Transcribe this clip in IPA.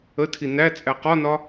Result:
ə tʰ i n æ t͡sʼ æ q ɒ n ɒ

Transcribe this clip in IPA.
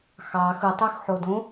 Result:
x ɑ x ɯ tˤ y x ħ o d õ

